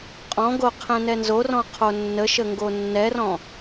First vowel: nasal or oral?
nasal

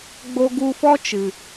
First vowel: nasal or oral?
oral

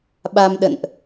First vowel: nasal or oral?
oral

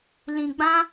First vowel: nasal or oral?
nasal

